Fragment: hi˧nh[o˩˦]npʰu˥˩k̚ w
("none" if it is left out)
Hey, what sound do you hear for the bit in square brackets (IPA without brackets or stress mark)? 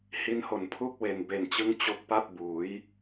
o˨˩